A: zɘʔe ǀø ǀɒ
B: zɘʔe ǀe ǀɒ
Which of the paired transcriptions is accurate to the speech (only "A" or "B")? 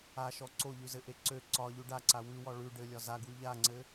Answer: A